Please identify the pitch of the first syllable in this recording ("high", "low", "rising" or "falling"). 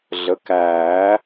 rising